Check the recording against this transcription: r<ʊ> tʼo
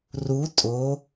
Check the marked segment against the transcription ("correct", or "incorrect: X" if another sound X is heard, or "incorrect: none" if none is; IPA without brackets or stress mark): incorrect: u